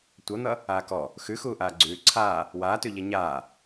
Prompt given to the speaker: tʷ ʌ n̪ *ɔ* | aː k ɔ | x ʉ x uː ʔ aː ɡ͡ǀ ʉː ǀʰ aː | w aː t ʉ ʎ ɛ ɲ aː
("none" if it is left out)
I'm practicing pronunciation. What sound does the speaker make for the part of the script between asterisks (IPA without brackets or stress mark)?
ʌ